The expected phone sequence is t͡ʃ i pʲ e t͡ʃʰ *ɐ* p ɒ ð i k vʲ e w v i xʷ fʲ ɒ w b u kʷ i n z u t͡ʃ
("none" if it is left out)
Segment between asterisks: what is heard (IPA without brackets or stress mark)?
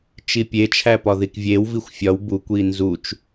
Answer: æ